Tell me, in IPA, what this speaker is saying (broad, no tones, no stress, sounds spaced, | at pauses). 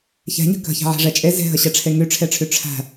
ç ɛ̤ ɲ ə̤ k ə̤ ç ɛ̤ ʕ ɛ̤ ʐ ɛ t͡ʃʼ e z e̤ ɦ ə ɕ ɛ ʈ͡ʂʰ e ŋ y ʈ͡ʂʰ e ʈ͡ʂʰ y ʈ͡ʂʰ æ̤